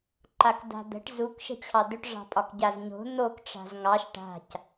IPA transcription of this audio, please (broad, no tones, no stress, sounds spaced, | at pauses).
ǃ a k d a̤ d̪ ə̤ ʈ z u k ʃ ə̤ t͡ɕʰ ɑ d̪ ʏ ʈ ʐ ɑ̤ pʼ ɒ k ɟ a z ɲ o̤ n̪ o k ʈ͡ʂ a̤ z ŋ ɑ ʃ ʈ a̤ c